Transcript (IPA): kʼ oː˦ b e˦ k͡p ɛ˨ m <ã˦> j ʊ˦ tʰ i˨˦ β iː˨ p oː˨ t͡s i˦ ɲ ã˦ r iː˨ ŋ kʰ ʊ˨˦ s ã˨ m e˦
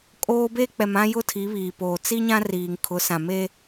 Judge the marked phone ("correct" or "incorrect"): correct